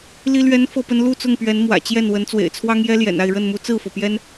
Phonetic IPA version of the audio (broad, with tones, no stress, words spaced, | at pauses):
li˦lɥɛ˦n fɤ˥˨pə˦n lu˥˨t͡sʊ˥˨ŋpɥɛ˨˦n mwä̰˨˩t͡ɕjɛ˥˨n wə˨˦nt͡swḛ˨˩ɪ̯t͡sʰwɑ˦ŋjɛ˦ ljɛ̰˨˩na˥˨ɪ̯ɻə˥˨nmu˦ t͡sɹ̩˥˨fɤ˩pjɛ˦n